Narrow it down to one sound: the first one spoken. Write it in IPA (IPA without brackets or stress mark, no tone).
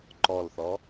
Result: ǃ